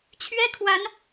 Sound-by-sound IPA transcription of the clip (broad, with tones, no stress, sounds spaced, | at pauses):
t͡ɕʰ ɥ ɛ˥ kʰ w a˧˥ n